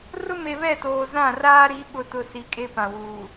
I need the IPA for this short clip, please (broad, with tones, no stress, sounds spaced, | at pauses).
r ʊ˦ m e˨ β ɛ˦˨ t oː˨ z ã˦˨ r aː˦ ɾ i˨˦ ɓ ʊ˨ t ʊ˨ s i˨ kʼ e˦ p ã˨ w uː˨